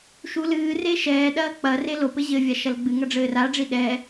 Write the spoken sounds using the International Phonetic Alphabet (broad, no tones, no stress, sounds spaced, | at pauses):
ʃ u l ɨː r e ʃ ɛː ɗ ɐː k͡p ɐ r e l o p ɘ ʑ ɘ vʲ a ʃ ɐ l ɡ͡b ɨ ŋ ɐ ɖ͡ʐ ɘː r a ɖ͡ʐ i ɗ ɛ